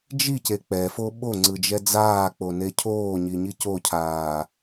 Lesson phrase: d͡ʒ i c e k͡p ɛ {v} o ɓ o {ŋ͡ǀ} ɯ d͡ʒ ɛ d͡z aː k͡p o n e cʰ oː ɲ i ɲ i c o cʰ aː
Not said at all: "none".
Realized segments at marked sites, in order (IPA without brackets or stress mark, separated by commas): f, ŋ͡ǀ